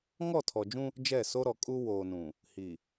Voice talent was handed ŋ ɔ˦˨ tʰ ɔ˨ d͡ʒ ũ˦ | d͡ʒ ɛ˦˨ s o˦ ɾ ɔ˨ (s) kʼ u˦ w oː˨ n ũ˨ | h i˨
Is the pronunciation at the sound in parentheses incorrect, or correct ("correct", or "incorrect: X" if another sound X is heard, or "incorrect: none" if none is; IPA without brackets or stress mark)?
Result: incorrect: none